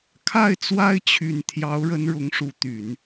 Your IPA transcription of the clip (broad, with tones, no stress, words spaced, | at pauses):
kʰa˥˩ɪ̯t͡swa˥ɪ̯t͡ɕʰy˨˩n t̪ʰjɑ˧˥ʊ̯ɻə˧˥n ɻʊ˧˥ŋʂu˧˥t̪y˨˩˦n